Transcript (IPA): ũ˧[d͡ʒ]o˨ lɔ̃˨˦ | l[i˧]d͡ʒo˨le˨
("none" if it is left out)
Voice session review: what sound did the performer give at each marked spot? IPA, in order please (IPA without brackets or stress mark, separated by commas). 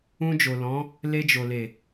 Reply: d͡ʒ, e˧